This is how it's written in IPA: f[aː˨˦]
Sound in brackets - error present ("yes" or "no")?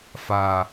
yes